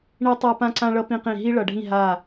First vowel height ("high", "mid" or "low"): high